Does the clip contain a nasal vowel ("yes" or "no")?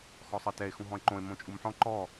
yes